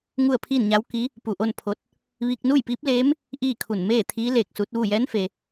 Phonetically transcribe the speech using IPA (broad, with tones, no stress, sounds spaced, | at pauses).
ŋ u˥˨ ə̯ pʰ iː˥˨ n ɲ a˧˥ w k i˧˥ | p u˧˩ ʔ o˥˨ n pʰ o˧ t̚ | ʋ iː˧ k̚ n uː˥˨ j p iː˧˥ p̚ l eː˧˥ m | ʔ iː˥˨ kʰ u˧˩ n m eː˥˨ t̪ʰ iː˧˥ l e˧˩ k̚ s u˧˥ t̚ ʋ u˥˨ j ɛː˧˥ n f e˩